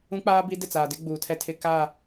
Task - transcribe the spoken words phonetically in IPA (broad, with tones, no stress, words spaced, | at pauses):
ũ˦k͡paː˦ bi˦ dɪ˦˨t͡saː˨dɪ˦ ɡ͡buː˨tʰɛ˦ tʰɪ˦ka˦˨